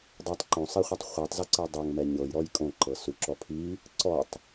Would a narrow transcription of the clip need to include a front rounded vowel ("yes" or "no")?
no